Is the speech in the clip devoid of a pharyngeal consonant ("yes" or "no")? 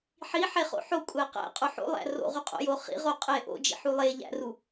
no